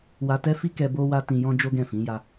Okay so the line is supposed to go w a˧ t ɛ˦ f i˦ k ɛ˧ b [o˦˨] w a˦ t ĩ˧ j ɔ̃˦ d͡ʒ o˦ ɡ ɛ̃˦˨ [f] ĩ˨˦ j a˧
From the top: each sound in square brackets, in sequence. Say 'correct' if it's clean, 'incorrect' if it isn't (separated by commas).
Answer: incorrect, correct